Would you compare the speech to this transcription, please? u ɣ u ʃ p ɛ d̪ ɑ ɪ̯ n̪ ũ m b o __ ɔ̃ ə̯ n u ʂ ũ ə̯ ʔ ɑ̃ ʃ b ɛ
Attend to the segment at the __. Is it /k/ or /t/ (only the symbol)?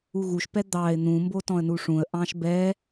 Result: t